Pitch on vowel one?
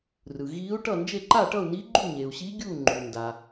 low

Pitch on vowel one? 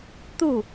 falling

